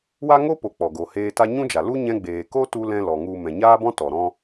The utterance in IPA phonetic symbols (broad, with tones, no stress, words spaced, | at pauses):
wa˦ŋo˦po˨ k͡pɔ˨ɡo˨heː˧ta˦ ɲũ˦d͡ʒa˨ lu˦ ɲɛ̃˧ɡ͡beː˨ ko˦tu˧ lɛ̃˧ lɔ˨ŋu˧ mɛ̃˨ɲaː˦bɔ̃˦ tɔ˨ ɾɔ̃˦